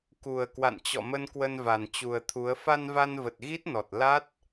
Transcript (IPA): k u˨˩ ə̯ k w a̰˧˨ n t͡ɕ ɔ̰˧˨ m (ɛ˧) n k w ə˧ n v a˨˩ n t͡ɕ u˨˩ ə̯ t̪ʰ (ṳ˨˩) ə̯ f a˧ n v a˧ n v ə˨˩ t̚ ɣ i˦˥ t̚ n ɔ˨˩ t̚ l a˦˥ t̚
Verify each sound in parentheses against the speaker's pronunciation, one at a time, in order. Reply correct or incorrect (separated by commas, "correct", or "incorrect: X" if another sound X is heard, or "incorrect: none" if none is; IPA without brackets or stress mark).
incorrect: ə˧, incorrect: u˨˦